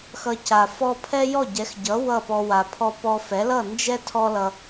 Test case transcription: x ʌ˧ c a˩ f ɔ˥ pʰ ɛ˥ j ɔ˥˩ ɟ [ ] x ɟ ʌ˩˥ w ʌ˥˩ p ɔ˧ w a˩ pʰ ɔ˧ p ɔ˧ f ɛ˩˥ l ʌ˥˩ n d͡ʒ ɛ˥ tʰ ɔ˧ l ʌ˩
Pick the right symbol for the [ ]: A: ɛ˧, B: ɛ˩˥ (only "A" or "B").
B